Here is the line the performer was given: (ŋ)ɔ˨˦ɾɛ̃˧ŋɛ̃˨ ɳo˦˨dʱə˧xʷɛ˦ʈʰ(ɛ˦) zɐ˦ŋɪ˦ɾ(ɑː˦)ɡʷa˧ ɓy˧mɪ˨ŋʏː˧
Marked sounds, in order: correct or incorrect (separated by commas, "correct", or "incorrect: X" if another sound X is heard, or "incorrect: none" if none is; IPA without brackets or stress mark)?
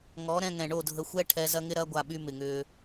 correct, incorrect: ɛ˧, incorrect: ɐː˦